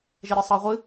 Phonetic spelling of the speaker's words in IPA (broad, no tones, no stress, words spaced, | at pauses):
ʒeɾʲɤsˤɤʁʷɨ